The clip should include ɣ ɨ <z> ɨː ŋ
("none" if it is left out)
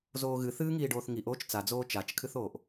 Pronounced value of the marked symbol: θ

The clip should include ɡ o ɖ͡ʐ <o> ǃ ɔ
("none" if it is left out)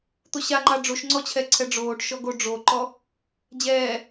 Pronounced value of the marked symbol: o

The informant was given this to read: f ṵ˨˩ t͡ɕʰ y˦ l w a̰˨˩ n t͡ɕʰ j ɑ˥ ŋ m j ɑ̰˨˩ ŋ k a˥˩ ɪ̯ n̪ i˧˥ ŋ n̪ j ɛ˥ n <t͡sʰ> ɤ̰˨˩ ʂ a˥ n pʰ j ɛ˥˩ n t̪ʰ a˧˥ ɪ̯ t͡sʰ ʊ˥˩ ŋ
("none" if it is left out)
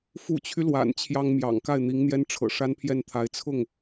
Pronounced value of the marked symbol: ʈ͡ʂʰ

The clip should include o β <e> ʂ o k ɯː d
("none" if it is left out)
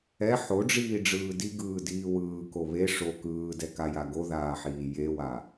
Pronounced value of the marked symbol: e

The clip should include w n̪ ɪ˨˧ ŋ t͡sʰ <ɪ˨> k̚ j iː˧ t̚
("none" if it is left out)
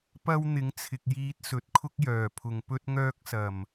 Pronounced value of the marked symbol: ɪ˨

